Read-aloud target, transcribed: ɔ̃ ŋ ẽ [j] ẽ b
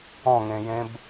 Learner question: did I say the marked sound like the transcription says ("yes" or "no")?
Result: yes